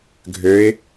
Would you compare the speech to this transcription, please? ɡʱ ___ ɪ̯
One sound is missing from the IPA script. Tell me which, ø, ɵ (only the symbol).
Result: ø